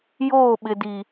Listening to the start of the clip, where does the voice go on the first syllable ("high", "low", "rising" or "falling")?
falling